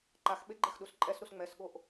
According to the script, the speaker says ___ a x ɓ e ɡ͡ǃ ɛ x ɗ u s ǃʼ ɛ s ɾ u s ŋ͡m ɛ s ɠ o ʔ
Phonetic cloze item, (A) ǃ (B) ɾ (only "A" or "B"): A